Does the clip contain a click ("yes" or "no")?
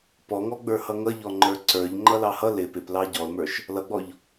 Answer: yes